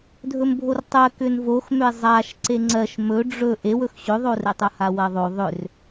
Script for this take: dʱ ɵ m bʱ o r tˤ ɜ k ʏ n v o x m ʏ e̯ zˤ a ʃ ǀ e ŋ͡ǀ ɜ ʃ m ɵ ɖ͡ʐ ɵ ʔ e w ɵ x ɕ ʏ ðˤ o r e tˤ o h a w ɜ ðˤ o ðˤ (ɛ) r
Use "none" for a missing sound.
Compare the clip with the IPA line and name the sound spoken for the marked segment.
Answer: ʏ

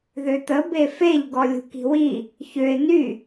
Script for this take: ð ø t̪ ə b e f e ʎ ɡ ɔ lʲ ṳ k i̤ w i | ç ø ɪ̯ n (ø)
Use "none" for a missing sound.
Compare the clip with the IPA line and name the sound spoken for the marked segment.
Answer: y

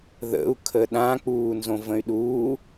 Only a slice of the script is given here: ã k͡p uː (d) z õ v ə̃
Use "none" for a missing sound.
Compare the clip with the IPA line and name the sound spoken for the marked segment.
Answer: n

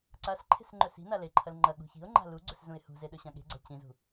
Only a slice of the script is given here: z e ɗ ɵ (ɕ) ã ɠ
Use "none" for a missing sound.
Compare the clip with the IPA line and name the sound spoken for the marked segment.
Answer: ɕ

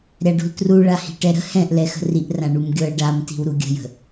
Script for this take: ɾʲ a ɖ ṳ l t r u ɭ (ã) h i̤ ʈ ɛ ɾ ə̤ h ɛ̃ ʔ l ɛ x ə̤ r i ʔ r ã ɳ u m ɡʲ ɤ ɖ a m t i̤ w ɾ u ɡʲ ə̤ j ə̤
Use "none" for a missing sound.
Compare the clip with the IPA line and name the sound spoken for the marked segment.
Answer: a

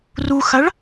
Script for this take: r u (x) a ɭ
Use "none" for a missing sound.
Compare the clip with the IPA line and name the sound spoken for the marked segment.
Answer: x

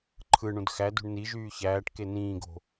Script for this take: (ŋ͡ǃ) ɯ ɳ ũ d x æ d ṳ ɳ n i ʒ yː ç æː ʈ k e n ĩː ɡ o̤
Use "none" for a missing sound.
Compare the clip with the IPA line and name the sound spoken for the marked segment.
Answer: ǃʰ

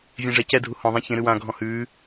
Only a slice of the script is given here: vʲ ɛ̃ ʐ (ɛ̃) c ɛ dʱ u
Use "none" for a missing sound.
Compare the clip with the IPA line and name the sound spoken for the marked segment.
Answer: ɛ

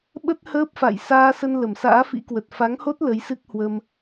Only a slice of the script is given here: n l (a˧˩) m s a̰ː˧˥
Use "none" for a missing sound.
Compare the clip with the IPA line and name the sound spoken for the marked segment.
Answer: ə˧˩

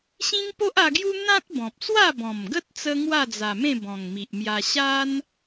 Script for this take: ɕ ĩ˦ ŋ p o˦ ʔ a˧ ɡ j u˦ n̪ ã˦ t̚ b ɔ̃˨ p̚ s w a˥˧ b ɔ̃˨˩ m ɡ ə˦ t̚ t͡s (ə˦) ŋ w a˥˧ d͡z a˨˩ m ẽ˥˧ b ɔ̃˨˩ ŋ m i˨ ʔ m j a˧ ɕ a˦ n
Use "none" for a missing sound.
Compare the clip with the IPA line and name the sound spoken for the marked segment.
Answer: ə˦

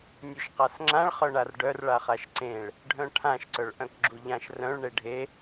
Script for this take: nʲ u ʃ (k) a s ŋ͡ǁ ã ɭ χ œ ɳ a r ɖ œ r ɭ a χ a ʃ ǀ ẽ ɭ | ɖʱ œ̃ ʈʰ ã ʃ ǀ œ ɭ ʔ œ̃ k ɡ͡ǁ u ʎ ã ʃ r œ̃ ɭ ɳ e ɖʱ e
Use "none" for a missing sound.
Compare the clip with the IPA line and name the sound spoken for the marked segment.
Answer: q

